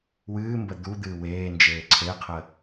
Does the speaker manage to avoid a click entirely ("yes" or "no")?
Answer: no